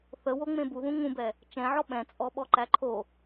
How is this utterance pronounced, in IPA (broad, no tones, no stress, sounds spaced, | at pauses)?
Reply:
θ ə w o ŋ͡m ẽ b u ð ũ ŋ ũ b ɛ | t͡ʃ ɛ̃ ʕ ɔ ɓ ɛ̃ t͡sʼ ɔ ɓ ɔ ǃ æ ǃʰ o